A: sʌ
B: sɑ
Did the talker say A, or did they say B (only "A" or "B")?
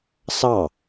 B